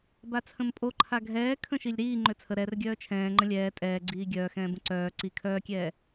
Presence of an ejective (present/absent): present